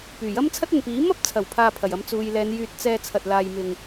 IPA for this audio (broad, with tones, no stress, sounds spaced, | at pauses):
p yː˨˩ j ɐ˥ m t͡sʰ ɐ˥ t̚ ɐ˨ n p iː˨˥ m ɐ˥ p̚ t͡sʰ ɐ˨˩ w pʰ aː˧ pʰ ɐ˨˩ j ɐ˧ m t͡s uː˨ j l ɛː˨˧ n j yː˧ t̚ t͡s ɛː˧ t͡sʰ ɐ˧ t̚ l aː˧ j m ɪ˧ ŋ